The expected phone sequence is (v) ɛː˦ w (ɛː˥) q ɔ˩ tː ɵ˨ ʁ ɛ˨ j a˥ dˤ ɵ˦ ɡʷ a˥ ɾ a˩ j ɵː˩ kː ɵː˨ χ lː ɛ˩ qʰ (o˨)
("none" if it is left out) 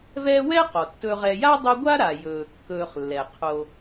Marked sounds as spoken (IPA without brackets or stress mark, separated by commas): v, ɛː˥, o˨